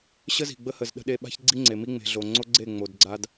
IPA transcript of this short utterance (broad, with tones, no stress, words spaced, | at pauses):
ɕə˦zi̤˨ɡ͡bə˦hə˨z ɗə̤˦ɗe˦ ɓa̤˦çɡ͡ǀi˦ŋ͡ǀe˨mi˦ ŋ͡me̤˨ɮo˨ŋ͡ǀo˦ɡ͡ǀe˦˨ ŋ͡mo˨d ɡ͡ǀa˦d